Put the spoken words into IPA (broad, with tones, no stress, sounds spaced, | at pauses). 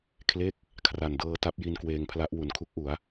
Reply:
kʰ l e˦˥ k̚ | kʰ r a˨˩ n d ɤː˧ t a˦˥ p̚ j i˧ n k w eː˧ ŋ pʰ l a˦˥ ʔ w u˩˦ n kʰ u˦˥ k̚ ʔ u˩˦ a̯